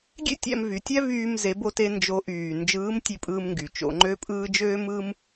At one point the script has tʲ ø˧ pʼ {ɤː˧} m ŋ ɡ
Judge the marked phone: incorrect: ɯː˧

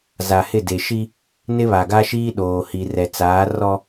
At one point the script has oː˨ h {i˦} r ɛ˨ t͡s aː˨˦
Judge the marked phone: incorrect: i˨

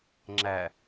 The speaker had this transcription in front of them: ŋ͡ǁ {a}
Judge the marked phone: incorrect: æ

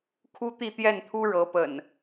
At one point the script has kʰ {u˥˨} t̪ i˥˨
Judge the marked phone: incorrect: u˦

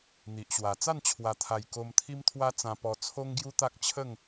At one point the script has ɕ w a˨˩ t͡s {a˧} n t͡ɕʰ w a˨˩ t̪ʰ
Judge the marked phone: incorrect: a˥˧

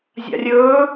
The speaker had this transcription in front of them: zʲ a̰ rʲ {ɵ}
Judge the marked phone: correct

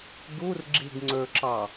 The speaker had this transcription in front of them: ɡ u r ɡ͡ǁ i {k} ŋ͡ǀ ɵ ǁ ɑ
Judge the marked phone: incorrect: ɡ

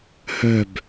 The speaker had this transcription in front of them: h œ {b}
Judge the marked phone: correct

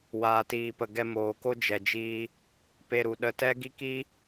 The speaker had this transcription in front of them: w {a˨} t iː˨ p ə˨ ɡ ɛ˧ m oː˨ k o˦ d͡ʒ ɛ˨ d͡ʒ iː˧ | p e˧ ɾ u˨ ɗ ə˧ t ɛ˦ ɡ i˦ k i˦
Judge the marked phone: incorrect: aː˨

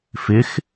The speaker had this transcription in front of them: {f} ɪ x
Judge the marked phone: correct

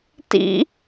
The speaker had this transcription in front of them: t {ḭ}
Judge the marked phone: correct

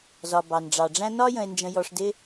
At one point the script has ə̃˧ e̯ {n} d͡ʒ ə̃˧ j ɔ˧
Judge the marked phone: correct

